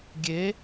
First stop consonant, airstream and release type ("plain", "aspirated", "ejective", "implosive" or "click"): plain